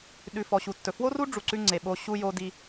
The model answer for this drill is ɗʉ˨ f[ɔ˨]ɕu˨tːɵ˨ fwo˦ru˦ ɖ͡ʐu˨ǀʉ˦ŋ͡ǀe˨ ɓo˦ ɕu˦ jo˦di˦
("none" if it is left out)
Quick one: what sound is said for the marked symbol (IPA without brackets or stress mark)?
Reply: ɔ˨